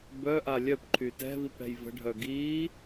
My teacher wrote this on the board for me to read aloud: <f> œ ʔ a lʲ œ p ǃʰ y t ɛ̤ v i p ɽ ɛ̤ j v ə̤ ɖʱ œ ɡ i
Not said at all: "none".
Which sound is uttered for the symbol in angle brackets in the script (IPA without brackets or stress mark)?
b